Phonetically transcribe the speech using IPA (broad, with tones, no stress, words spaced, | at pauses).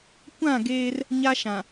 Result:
kʷã˦˨ ɡeː˦r | ɲa˦ʃã˨